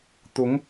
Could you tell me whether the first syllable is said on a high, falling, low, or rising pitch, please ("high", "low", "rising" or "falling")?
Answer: rising